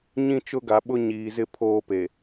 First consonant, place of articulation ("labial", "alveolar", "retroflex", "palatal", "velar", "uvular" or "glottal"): palatal